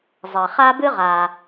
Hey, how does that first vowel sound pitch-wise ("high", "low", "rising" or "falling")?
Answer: low